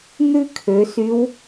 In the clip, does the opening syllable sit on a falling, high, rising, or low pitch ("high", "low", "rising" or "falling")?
high